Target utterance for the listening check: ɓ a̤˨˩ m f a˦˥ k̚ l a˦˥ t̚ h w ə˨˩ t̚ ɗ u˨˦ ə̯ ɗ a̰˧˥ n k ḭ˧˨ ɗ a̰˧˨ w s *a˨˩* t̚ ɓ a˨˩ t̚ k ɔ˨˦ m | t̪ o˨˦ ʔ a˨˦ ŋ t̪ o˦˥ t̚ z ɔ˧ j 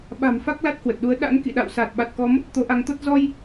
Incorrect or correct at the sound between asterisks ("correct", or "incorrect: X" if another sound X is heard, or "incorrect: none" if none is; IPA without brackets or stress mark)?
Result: incorrect: aː˨˩